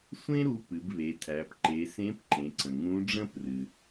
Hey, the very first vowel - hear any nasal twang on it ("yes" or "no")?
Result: yes